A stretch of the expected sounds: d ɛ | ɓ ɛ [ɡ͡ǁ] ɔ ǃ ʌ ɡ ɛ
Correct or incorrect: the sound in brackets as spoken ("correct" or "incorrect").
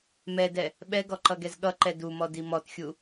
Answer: incorrect